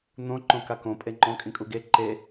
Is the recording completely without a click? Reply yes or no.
no